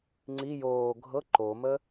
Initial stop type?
click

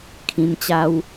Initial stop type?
aspirated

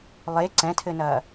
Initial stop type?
click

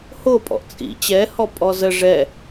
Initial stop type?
ejective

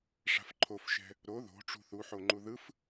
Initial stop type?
click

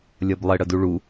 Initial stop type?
plain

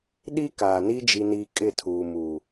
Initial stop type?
implosive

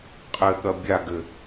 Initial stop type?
ejective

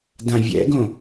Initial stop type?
plain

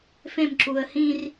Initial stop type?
click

